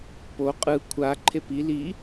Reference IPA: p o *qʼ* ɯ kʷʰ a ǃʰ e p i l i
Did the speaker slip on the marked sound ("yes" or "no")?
no